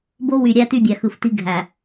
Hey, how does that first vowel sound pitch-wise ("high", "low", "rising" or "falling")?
high